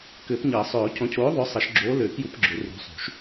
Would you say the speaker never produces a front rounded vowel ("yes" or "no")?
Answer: no